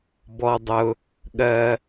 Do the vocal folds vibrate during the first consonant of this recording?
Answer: yes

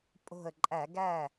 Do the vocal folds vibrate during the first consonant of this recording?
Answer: no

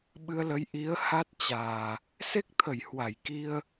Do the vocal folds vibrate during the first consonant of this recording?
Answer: yes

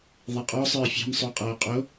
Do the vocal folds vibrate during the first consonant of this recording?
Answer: yes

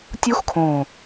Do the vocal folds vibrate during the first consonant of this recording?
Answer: no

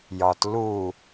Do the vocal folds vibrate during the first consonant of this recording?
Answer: yes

